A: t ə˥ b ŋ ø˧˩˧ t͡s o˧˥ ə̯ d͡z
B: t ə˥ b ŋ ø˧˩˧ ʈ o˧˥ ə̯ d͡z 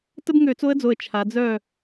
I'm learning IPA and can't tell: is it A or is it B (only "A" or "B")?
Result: A